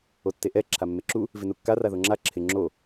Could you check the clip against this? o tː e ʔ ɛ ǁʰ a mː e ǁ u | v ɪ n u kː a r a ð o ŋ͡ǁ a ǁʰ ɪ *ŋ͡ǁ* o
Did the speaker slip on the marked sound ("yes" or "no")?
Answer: no